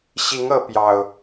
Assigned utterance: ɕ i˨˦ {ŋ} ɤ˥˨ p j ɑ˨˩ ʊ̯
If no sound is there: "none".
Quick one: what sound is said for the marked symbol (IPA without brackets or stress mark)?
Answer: ŋ